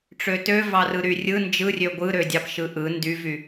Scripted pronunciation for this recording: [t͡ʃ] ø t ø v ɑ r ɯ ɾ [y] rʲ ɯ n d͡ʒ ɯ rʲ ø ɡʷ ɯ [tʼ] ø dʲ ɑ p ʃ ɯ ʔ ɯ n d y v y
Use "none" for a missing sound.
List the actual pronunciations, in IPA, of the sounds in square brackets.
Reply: ʈ͡ʂ, y, ɾ

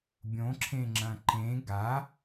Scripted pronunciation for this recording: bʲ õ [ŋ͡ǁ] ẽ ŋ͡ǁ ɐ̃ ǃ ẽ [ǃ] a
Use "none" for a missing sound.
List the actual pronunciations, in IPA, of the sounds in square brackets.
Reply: ǁʰ, ɡ

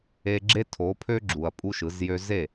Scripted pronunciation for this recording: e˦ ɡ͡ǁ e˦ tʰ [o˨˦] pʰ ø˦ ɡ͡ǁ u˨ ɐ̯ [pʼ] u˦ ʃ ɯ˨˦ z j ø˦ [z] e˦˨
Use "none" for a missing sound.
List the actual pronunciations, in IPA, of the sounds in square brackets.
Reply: o˨˦, pʼ, z

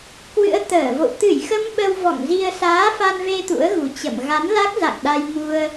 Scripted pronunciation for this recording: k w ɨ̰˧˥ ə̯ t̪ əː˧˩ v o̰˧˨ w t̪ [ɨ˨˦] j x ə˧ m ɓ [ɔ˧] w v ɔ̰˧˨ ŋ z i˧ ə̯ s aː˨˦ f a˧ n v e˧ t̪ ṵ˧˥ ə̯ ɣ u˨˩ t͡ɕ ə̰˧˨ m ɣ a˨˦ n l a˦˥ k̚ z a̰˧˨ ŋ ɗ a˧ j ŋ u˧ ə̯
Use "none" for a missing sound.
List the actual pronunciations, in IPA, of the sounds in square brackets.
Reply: ɨ˧˩, ə˧

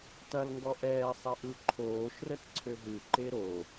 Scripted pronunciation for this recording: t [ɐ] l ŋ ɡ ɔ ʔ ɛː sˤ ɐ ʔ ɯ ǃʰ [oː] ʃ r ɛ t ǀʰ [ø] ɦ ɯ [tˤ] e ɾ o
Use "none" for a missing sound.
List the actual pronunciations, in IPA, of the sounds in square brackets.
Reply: ɐ, oː, ø, ǃ

